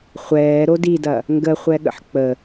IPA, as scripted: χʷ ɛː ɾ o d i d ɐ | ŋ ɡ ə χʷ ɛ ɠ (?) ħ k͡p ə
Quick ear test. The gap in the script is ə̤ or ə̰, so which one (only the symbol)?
ə̰